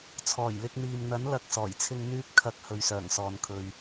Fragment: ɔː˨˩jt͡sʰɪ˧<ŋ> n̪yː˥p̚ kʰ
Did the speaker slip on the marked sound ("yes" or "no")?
no